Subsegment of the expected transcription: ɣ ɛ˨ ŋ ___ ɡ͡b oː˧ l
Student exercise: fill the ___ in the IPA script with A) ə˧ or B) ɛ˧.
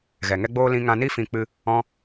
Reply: B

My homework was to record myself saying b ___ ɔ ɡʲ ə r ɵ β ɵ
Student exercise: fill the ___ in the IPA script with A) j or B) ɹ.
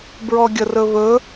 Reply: B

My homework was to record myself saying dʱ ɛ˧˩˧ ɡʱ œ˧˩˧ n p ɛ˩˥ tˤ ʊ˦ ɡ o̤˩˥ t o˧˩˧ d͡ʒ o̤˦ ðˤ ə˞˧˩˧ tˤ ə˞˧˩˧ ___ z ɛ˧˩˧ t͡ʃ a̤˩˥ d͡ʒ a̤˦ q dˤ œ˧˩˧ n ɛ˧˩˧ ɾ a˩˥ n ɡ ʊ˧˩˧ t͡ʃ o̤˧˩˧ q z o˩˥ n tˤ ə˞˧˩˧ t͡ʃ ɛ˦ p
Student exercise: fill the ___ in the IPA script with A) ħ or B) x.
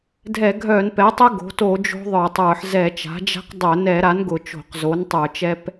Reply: A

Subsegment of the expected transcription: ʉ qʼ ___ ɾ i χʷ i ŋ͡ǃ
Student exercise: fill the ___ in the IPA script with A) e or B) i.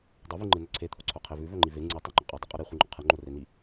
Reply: A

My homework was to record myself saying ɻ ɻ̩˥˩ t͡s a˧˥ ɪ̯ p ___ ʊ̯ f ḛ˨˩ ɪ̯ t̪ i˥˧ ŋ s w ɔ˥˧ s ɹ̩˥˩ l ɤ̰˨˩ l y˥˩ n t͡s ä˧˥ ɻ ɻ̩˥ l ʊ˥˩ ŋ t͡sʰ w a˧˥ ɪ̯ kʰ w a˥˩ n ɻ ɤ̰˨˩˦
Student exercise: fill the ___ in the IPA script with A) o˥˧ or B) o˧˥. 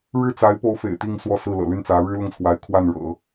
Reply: B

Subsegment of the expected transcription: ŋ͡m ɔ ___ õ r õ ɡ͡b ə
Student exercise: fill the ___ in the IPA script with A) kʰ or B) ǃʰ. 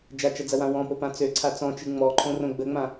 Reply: B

